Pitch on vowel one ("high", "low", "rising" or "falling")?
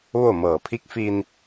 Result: falling